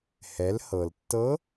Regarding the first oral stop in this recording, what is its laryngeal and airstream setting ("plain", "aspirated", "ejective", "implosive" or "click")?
plain